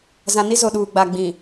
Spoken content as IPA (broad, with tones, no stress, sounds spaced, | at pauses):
z ã˨ n i˦ z o˨ ɗ uː˨ ɡ͡b a˨ ɡ͡b ĩ˨